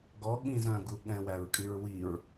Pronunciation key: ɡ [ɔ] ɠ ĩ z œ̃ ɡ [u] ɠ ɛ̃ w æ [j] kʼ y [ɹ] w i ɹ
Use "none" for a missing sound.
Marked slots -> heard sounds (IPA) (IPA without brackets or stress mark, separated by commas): ɔ, u, ɹ, ɹ